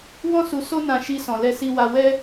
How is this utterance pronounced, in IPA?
w ɔ̃˦ s u˧ s o˧ n ã˨ ʃ i˧ s ɔ̃˨ l ɛ˧ s i˧ w a˧ w ɛ˦

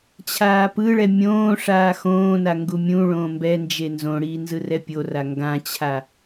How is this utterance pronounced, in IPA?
t͡ɕʰ aː p ɯ ɭ ɛ mʲ õː ʂ aː x õː n a ŋ ɡ u mʲ ũ ɭ õː m b ɛ n d͡ʒ e n z õ ɽ iː n z ɯ r ɛ pʲ o r a ŋ ɡ ã t͡ɕʰ a

